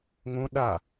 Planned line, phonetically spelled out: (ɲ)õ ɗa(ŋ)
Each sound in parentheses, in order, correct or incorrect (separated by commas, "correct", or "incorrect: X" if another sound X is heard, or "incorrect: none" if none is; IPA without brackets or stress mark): incorrect: ŋ, incorrect: none